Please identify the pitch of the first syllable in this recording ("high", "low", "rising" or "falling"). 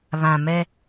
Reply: low